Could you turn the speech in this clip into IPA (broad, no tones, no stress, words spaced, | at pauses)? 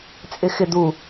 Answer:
t͡sʼɪxɪd̪u